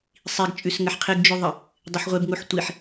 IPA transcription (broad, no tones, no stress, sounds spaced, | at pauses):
sˤ i ɡ t͡ʃʼ ʉ s ŋ ə ħ qʰ ɪ ɡ d͡ʒ ʉ ðˤ ə | dˤ ɪ ħ ʁʷ e b ŋ u ħ tʷ i ħ